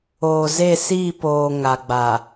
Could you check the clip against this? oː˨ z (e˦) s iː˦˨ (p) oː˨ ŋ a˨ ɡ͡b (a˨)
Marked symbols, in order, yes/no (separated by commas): no, yes, yes